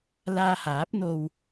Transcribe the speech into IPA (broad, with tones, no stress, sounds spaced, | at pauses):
l aː˧ h aː˨˥ p̚ n̪ o˧ w